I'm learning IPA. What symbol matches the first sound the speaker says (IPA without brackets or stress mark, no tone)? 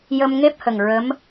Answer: j